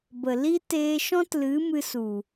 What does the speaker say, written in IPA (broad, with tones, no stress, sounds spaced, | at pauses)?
b ə˨ l i˦ t eː˧ ʃ ɔ̃˦ t l ɨ˨˦ m ɨ˧ s u˨